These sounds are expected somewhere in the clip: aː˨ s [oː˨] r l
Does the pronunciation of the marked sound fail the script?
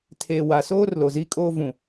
yes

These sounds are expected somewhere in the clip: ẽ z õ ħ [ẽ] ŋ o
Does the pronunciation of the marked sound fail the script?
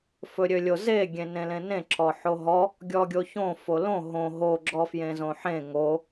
no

